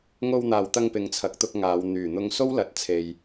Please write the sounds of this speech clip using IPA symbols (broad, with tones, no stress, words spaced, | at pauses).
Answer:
ŋo˧wn̪aː˨wt̪ɐ˧ŋ pɪ˨˧ŋt͡sʰɐ˨˥k̚t̪ʊ˧k̚ ŋaː˨˧w n̪yː˨˩n̪ʊ˧ŋ so˥wlɐ˨˥t̚t͡sʰe˨j